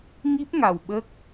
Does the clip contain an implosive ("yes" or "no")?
yes